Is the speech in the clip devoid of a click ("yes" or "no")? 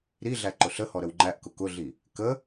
no